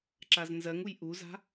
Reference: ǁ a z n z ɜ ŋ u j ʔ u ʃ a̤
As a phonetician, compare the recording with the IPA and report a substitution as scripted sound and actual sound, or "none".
ʃ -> z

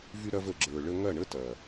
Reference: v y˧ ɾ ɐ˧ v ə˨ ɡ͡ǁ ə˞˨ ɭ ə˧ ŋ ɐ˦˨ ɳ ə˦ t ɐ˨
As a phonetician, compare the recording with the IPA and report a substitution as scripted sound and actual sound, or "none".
none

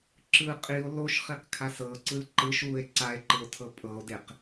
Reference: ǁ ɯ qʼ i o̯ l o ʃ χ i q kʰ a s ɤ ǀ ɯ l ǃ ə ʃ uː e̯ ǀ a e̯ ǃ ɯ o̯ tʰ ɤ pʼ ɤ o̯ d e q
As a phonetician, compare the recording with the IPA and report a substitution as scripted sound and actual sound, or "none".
ə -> ɯ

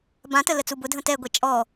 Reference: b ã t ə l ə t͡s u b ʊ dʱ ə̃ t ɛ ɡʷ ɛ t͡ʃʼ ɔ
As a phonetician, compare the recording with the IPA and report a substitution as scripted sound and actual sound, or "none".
none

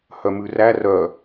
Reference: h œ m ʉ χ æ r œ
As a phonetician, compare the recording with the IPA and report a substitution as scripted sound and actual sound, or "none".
χ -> r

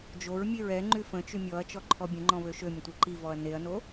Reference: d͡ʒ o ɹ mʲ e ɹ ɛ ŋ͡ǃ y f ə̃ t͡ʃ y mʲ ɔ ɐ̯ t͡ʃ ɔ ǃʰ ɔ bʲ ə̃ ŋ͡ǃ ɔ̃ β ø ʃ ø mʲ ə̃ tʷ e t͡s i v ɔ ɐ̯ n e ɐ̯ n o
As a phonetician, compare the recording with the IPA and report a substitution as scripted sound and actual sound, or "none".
t͡s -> ǃ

